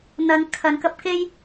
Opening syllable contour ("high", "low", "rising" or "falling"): low